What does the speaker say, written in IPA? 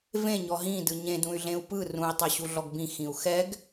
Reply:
v ẽ ɲ ɔ ɦ ĩ d ɯ ɲ ẽ d ũ y̯ ɮ ẽ u̯ p ɯ r ũ i̯ tˤ ɤ ɕ u ɮ ɔ ɡ b ĩ x ĩ u̯ x ɛ ɡ

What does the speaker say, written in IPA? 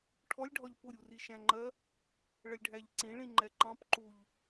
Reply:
ʈʰ ɔ lʲ ɖʱ ɒ ʎ p ʊ ɾʲ u r i ʃ æ̃ ŋ͡ǃ ɜ | ɭ ə lʲ ɖʱ æ ʎ ǀ ĩ ɭ ĩ ŋ͡ǃ ɛ ǃ ɑ̃ p ǃ u ʎ

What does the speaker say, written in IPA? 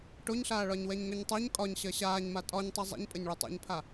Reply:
ʈ o ɲ ɬ aː ɭ ɒ ɲ w ɛ ɲ ŋ ʏ ɲ tˤ ɛ ɲ kʼ ɒ ɲ ɕ ɜ ɕ aː ɲ m a tʼ ɒ ɲ tˤ i zˤ ḛ ɲ pʼ ɘ ɲ ɭ ʏ tˤ ɛ̰ ɲ pʰ a

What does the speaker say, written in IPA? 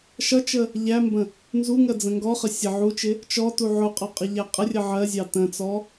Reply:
ʃ ʌ t͡ʃ ə | ʎ æ m b ə̃ | n z u ŋ ɜ d͡z ə̃ ŋ ɡ ɔ χ ə sʲ ə ʕ u t͡ʃ ɪ | t͡ʃ ɔ t u ʕ ʊ qʼ ɔ qʼ ə ʎ æ qʼ ə rʲ ə ʕ ɜ zʲ ɑ t ə̃ t͡s ɔ

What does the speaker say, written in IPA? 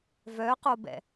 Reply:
v œ q o b ɛ̰

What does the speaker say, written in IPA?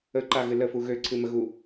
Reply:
ə ǃ a ɣ ɨ l ə f u ɣ ø ǀʰ ɨ m ə ɣ u

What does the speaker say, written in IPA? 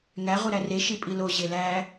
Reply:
ŋ æ ʁ u ɾ æ r e ʃ i pʼ i l o ʑ e l æ

